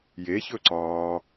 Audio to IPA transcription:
j e ç ɵ ǀ ɒː

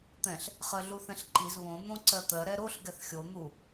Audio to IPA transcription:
t̪ ɛ̃ ɬ | χ ɜ ɮ u θ ɛ̃ ɬ ǃ i z β õ n̪ õ ǀ ɜ t̪ ɜ ɾ ɛ ɾ o ɬ ɡ ɛ θ xʲ o n̪ u

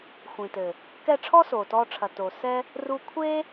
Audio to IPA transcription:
xʷ ĩ˨ t ɘ˨ | k ɛ˦˨ ʈ͡ʂʰ ɔ˦ s oː˨ t ɔː˧ ʈ͡ʂʰ ɐ˨ t oː˨ s ɛ˦ | r u˧ kʷʰ eː˦

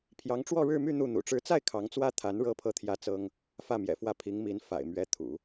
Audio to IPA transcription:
pʰ j ɑ˧˥ ŋ ʈ͡ʂ w ɔ˥˧ ɻ ɻ̩˥˧ m y˥˧ n̪ u˥˩ n̪ ṵ˨˩ ʈ͡ʂ ɻ̩˧˥ t͡s a˥˩ ɪ̯ kʰ ɑ˧˥ ŋ t͡s w ä˥ t̪ʰ a˧˥ n ɻ ɤ˥ pʰ ɤ˥˩ t̪ʰ j ä˥ t͡s ɤ˥ ŋ | f ä˥˩ m j ɛ̰˨˩ f w ä˥˩ pʰ i˧˥ ŋ m i˧˥ n f a̰˨˩ ɪ̯ m ɥ ɛ˧˥ t̪ʰ ṵ˨˩˦

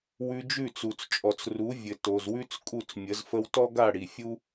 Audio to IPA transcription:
w ʉ˧ d͡ʒ ʉ˥˩ t͡s u˩ t͡s t͡ʃʼ ɔ˩ t͡s r u˩˥ vʲ ɘ˩ t o˩ z w ʉ˥ t͡s kʼ u˥˩ t͡s mʲ ə˩˥ z f ə˥ w t ɔ˥ ɡ a˥˩ ɽ i˩ fʲ u˥

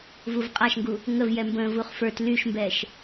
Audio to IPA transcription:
v u v qʼ a ʃ ŋ ɡ u | ŋ ə v j ɛ m b ə̃ː v u χ f ə˞ t l y ʃ m b ɛ ʃ

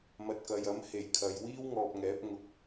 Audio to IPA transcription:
m ɐ˨ t̚ k ɐ˨ j ɐ˨˥ m h e˨˩ j kʰ ɐ˨ j w iː˥ w ŋ ɔː˨ p̚ ŋ ɛː˨˥ p̚ ŋ ʊ˧ k̚

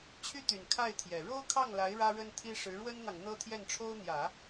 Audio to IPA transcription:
t͡ɕʰ y˥ t̪ y˨˩ n kʰ a˥˩ ɪ̯ t̪ʰ j ɛ˨˩ ɻ o˥ ʊ̯ kʰ ɑ˥˩ ŋ l a˧˥ ɪ̯ ɻ ä˥ ɻ ə˥ n t̪ʰ i˥ ʂ ɻ̩˧˥ ɻ w ə˥ n n̪ ɑ˨ ŋ n̪ ɤ˥ t̪ʰ j ɛ˥˩ n ʈ͡ʂʰ o˥ ʊ̯ n̪ j ä˨˩˦

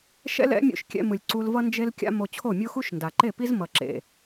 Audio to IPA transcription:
ʃ ɛ̰˦ l ɛ̰˨˦ mʲ o̰˧ ʃ kʲ ɛ̰˧ m ɯ˨ lʲ ǀ u˧ l v ʌ˦ n d͡ʒ e˦ l kʲ a̰˦ m o˧ t͡ɕʰ o˦˨ mʲ o˦ x u˦ ʃ n d a˨ ǃ e˦˨ p i˦ z m ʌ˨ ǁ ḛ˨

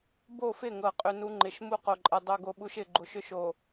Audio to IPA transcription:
b o˦˨ f ɪ˦˨ ŋ ɤ˨ qʼ ʏ˦ n u˦ ŋ͡ǃ ɪ˨ ʃ m u˦ q o˨ ǃʼ ɛ˨ dˤ o˦ ɡ o˦ ɓ u˦ ʃ ɪ˨ ɡ͡ǃ o˨ ʃ ʏ˦ ʃ o˨

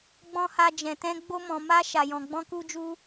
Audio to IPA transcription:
ɡ͡b ɔ̃˦ h a˦ d͡ʒ ɛ̃˧ t ɛ̃˦ ɡ͡b o˦ m ɔ̃˧ m a˦ ʃ a˧ j ɔ̃˧ ɡ͡b ɔ̃˦ k u˦ d͡ʒ u˦

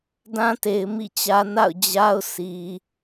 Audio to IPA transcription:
d ã˦ t e˨ ɪ̯ m ḭ˦˨ t͡ɕ ä˦ n a̰˦˨ ʊ̯ d͡ʑ a˦ ʊ̯ s i˨

